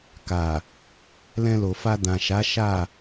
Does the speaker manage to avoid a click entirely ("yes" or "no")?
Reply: yes